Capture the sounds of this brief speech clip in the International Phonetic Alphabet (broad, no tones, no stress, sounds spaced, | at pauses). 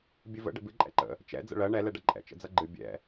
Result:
bʲ ɨ v ə̰ ɖ ə̰ b ɨ ǃʼ ɛ̰ ǃ ə̰ | t͡ʃ ɛ̰ d͡z ə̰ ɭ ɜ ɳ ɛ l ɛ ɖ ʌ ǃʼ ɛ̰ t͡ʃ ə̰ d͡z ʌ ɡ͡ǃ ɨ bʲ ɛ̰